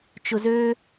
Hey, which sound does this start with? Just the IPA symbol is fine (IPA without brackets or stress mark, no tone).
t͡ʃ